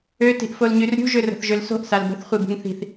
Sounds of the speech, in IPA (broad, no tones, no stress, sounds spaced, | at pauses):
ø t i̤ ʔ f o l ɲ y r ɾʲ ṳ ʒ ø r ə̤ θ ʒ ø l s o̤ ʔ s a l b ə̤ θ χʷ i b ṳ ŋ θ i̤ θ